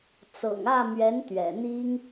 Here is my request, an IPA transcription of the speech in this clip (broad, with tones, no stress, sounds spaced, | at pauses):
t͡s ɤ̰˨˩ ŋ ä˥˩ m ɥ ɛ˧˥ n t̪ ɥ ɛ̰˨˩ n̪ i˥ ŋ